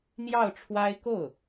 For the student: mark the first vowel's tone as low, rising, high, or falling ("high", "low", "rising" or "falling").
falling